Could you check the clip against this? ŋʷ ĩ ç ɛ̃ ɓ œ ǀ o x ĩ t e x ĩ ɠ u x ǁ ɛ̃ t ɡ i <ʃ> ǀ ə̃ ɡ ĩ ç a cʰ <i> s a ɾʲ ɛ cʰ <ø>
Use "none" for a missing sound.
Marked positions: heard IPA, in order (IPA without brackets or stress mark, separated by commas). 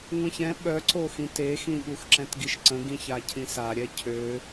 ʃ, ĩ, ø